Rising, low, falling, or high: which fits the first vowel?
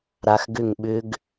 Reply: low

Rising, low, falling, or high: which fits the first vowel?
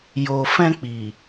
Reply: low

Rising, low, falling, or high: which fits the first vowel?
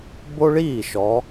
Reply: high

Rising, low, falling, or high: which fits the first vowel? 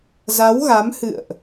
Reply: rising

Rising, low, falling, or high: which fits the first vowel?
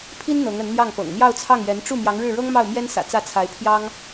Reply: high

